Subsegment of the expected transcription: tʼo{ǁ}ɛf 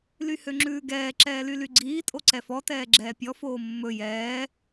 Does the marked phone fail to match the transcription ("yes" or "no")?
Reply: yes